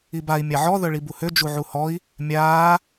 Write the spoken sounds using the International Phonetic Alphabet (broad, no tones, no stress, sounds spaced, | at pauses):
i b a i̯ mʲ a ʕ ɔ ð œ ɭ i b u h ø d͡ʒ u ʕ u h ɔ i̯ | mʲ aː